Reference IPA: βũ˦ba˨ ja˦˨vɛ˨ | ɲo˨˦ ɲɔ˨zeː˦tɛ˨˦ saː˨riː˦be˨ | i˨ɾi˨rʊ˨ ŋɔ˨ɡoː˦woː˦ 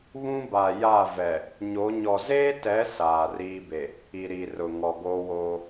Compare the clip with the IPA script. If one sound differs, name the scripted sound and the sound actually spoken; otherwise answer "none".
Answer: none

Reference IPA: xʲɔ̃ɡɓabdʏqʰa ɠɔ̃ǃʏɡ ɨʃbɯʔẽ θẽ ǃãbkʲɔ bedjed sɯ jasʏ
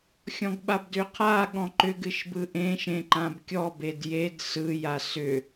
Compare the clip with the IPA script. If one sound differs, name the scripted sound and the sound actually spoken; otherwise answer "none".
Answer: θ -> ʃ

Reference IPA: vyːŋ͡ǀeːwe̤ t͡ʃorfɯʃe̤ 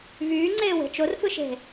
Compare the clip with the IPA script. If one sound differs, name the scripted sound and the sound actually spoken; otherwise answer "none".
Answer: none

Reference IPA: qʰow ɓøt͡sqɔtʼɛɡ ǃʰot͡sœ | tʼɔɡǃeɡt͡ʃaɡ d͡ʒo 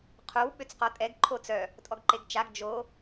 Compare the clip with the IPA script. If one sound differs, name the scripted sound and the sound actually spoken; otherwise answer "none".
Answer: none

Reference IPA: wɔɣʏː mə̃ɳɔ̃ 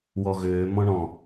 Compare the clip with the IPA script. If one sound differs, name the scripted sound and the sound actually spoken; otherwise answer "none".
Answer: ə̃ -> ɔ̃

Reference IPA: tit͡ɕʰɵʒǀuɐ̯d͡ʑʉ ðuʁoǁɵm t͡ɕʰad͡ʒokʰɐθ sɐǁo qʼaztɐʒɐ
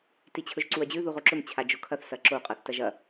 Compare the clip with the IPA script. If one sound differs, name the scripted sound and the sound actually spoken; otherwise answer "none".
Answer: z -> θ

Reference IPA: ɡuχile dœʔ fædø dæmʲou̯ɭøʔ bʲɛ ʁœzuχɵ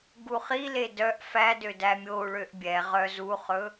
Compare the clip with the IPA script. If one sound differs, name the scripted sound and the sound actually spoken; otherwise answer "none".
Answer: none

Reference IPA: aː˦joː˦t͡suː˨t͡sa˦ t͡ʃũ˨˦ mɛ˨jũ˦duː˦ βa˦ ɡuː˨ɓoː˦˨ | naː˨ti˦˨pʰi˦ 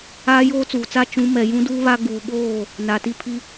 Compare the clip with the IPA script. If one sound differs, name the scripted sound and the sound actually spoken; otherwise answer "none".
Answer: none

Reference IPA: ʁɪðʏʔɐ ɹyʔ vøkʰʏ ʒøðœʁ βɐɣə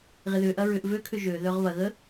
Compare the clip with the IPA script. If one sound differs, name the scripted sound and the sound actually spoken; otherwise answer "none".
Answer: y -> ʏ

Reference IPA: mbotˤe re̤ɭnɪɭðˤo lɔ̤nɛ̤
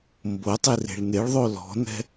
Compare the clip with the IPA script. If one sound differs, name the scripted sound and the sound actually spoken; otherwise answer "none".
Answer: none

